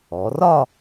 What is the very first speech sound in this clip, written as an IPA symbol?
ɔ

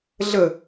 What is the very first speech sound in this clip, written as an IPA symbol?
ɮ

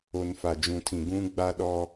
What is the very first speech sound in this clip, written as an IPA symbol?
o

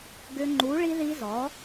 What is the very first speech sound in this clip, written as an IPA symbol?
ɡ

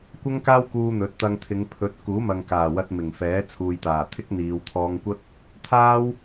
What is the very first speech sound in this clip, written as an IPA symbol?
kʷ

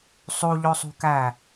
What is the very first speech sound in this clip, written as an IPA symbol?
sˤ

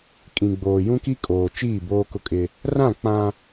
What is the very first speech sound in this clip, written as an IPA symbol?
kʼ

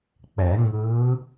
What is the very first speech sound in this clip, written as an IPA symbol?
k͡p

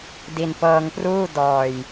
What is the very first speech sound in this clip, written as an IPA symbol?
d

